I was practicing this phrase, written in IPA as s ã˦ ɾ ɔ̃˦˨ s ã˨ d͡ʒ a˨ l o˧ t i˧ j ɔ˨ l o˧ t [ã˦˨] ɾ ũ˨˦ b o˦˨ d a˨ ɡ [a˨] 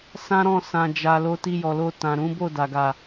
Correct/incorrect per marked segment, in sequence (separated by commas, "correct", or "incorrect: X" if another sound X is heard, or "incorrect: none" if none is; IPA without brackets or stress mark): incorrect: ã˨, correct